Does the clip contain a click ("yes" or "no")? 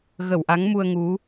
no